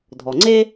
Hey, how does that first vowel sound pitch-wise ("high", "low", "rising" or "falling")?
low